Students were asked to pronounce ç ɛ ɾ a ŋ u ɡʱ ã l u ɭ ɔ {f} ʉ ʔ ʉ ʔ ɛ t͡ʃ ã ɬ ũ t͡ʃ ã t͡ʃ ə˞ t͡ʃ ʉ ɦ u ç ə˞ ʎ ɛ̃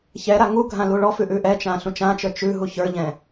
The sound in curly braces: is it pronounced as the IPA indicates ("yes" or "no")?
yes